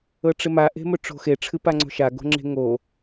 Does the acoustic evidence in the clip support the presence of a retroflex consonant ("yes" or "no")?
yes